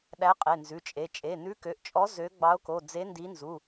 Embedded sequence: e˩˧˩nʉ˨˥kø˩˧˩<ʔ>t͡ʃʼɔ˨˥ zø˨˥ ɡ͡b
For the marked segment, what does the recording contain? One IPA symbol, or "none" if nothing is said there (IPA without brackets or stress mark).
ʔ